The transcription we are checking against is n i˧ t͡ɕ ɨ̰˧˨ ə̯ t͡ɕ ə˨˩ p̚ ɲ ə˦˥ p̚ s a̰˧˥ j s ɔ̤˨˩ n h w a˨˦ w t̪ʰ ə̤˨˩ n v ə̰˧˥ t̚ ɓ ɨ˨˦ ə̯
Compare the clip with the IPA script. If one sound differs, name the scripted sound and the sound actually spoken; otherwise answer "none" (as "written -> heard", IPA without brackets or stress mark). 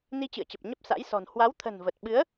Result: ə̰˧˥ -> ə˨˩